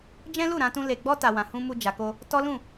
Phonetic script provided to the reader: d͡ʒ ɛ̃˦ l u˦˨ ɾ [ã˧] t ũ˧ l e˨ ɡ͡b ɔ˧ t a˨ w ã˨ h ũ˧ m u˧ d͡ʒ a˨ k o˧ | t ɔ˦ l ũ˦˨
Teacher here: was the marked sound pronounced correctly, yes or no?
yes